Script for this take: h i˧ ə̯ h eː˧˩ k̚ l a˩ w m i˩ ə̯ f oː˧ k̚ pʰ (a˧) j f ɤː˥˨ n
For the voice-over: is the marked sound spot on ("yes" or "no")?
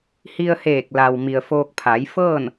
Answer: no